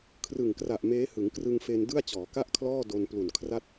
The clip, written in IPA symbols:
kʰrɯ˨˩ŋkra˨˩ʔ meː˦˥ hɯ˩˦ŋkrɯ˧ŋfe˧n dɯ˥˩a̯t͡ɕɔː˩˦ka˥˩ʔkʰlɔː˥˩ do˧n plu˨˩n kʰra˥˩t̚

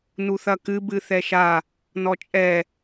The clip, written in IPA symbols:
nuθɐkɨ bɨθɛʃa | nɔt͡ʃʼɛ

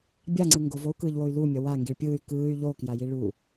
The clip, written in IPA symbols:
bʲaŋ͡ǀɯ ŋɡovou̯kɯːʎwoy̯ lumʲʌ waŋɡiɭ pʲɯːy̯ kɯːy̯ ʎoːkjaji ɭu

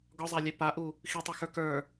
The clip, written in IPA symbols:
ɡɒzˤælʲɛ paʔu | xitˤixə˞ kə˞

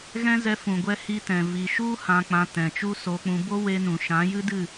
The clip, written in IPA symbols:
ɣɛ̃˦zɛ˧ fũ˨ɡʷɛ˧ hi˧tɛ̃˨ vi˨ʃu˦ hã˧ k͡pã˧ tɛ̃˨t͡ʃu˦so˧k͡pũ˧ bo˦we˧nũ˨ ʃã˨˦jɨ˦dɨ˦˨

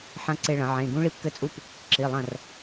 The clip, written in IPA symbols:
ħɐ̃˦˥ǀe˧ɭɐ̃˩˧ ʕẽ˩˧˩ ɡũ˦˥ɭi˥˧pkɘ˦˥t͡sʼu˦˥p | ǁi˩˧˩lˠɐ̃˧˩r

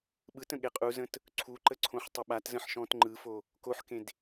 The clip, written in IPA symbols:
ɓɯtə̃ ɠeqʼuzə̃t | ǀʰuǃə ǀʰõħtˤəɓatzə̃ħ ʃɔ̃tŋ͡ǃɯfo | koħkẽd

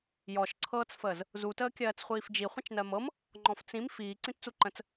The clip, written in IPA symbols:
jɔʃǀʰɤːt͡sfəːz | zutəː kʲɜːt͡sχʷiːfd͡ʒi χʷə̃t͡ʃnɜmɤm | ŋ͡ǃɔ̃ft͡sĩm fiː ǀĩtt͡suǃə̃t͡s

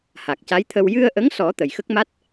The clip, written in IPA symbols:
ha˨˩k̚ca˧˥jt̪ʰə˧w jɨ˧ə̯ʔə˧˥ŋsɔ˨˩˦ t̪ə˨˩jxə˦˥k̚ma˦˥t̚

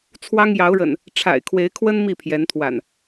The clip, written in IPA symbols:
t͡sʰwɑ˦ŋjɑ˨˦ʊ̯ɻə̰˨˩n | ʈ͡ʂʰa̰˨˩ɪ̯kʰwe˨˦ɪ̯kʰwə˦n mi˥˨pʰjɛ˨˦nt̪ʰwa̰˨˩n

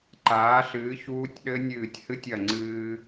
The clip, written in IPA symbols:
ǃaː˨˥ɬɨː˨˥ çuː˦˥tʲ ɗɘ˦˥nʲɨː˧˩tʲhɨ˦˥tʲɐ˧˩ ŋ͡ǀɨː˧

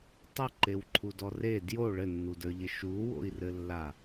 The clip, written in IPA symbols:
tˤɪǃewǃʰudɔ re djo ɭɘnːudə˞ʎɪ ʃuwo̰i̯rɘlːa

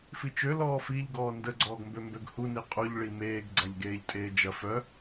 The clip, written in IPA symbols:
fit͡ʃø lɔːfiʎ ɡɔːndə ɡ͡ǀɔːɡmbømbøɡhu niqʼuʎ ɭimeːɡ ɡ͡ǀaʎɡeːʎtʼeːd͡ʒɐ fœ

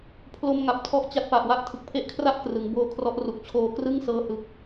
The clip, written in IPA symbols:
pʰlo˧m ŋa˨˩p̚tʰɔ˦˥ʔ t͡ɕa˦˥t̚pa˨˩ʔwa˥˩ʔ tʰɯ˨˩k̚pʰe˦˥ʔkʰra˥˩ʔ krɯ˩˦ŋ boː˧kʰrɔ˦˥ʔ ru˨˩k̚t͡ɕʰoː˧krɯ˥˩ŋ sɤː˦˥hɯ˨˩k̚

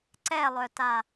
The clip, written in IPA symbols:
ǀɛlˠœta

